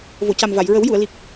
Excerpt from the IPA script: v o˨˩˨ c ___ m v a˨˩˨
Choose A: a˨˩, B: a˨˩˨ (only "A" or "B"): A